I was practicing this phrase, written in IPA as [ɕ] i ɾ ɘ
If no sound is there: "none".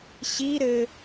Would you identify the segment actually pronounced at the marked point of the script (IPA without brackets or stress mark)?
ɕ